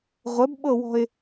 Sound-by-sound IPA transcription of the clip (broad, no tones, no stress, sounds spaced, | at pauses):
ʁʷ ə b ɓ ɤ w ɔ̤ ɪ̯